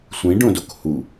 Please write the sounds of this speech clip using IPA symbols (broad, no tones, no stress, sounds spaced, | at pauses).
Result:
sʷ ĩ ɖ õ d o k h u